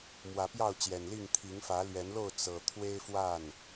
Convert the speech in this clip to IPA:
m w ä˨˦ p j ɑ˥˨ ʊ̯ t͡ɕ j ɛ˨˩ n l i˥˨ ŋ t̪ʰ i˨˦ ŋ f ä˨˦ l ɥ ɛ˨˦ n l o˥˨ ʊ̯ t͡s ɤ˨˩ t̪ʰ w e˦ ɪ̯ f w a˥˨ n

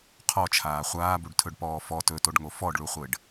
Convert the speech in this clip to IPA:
qʰ ɔ t͡ʃʰ aː χʷ aː b u ɖ tʰ ɵ ɖ p ɔː f ɔ t ɵ t o ɖ ŋ o f ɔ ɖ ɭ u χʷ ɘ ɖ

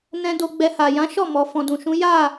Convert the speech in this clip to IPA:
n ɛ̃˧ d o˧ ɡ͡b ɛ˧ h a˨ j ã˨˦ ʃ ɔ˦˨ m ɔ˨ f ɔ̃˨ d ũ˨ ʃ ũ˨˦ j a˦˨

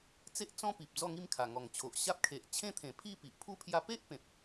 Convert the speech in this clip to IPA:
t͡s e˦ ʔ t͡s ɔ̃˦ p i˨ p̚ d͡z ɔ˥˧ ŋ i˥˧ m kʰ a˨˩ ŋ ɔ˨˩ ŋ t͡ɕʰ o˨ ʔ ɕ a˦ p̚ kʰ e˨ ʔ t͡ɕʰ ẽ˦ t̪ʰ ẽ˨˩ pʰ i˥˧ p i˨ ʔ pʰ u˦ pʰ j a˧ p e˦ ʔ p ẽ˨ p̚

